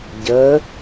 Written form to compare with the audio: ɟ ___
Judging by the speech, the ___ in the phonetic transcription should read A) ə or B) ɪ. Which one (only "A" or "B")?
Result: A